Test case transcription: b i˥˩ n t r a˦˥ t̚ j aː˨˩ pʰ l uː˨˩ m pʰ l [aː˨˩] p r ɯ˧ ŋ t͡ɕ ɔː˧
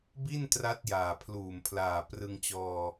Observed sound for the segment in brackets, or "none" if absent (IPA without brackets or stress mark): aː˨˩